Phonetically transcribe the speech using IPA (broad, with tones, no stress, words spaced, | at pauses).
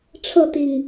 ʈ͡ʂʰɤ˥˨t̪i˨˩ŋ